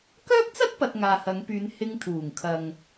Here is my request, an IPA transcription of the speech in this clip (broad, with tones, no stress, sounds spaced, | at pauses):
k œː˥ k̚ t͡s ɐ˥ t̚ p ɐ˨ t̚ ŋ aː˨ h ɐ˨˧ ŋ p yː˨˧ n h ɪ˧ ŋ t̪ʰ uː˨˩ ŋ kʰ ɐ˨ ŋ